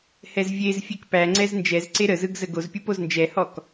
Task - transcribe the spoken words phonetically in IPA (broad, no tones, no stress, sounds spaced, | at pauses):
h ɛ z vʲ e z fʲ e k p æ ŋ͡ǀ ɛ z n d͡ʒ ɛ z ǀ e ɾ ə z ɯ ɡ z ə ɡ o z pʲ ɯ p o z n d͡ʒ ɛ h ɔ k